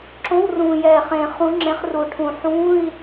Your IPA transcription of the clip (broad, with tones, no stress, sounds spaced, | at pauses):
ǁ õ˧˥˧ w r ũː˨˩ j ɛː˨˩ χ ẽː˨˩ χ ũ˨˦ ŋ͡ǁ ẽ˨˦ χ r u˨˩ ʈʰ ũ˨˩ ħ ũː˧˥˧ i̯